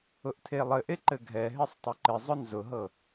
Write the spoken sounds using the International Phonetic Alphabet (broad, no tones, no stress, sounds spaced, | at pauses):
ʊ ʔ tʰ e lˠ ɘ ʔ e ǃ ɘ ɡʱ ɛ ɦ e sˤ tˤ ʊ ǃ ɪ zˤ ʊ n z ʊ ɦ ɤ